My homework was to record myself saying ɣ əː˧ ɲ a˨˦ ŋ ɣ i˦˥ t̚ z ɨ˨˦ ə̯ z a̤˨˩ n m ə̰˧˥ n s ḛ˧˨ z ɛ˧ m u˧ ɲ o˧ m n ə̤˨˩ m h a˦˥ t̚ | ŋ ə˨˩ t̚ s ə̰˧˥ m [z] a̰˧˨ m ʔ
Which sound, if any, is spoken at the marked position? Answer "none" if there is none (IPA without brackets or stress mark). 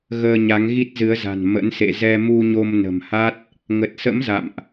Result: z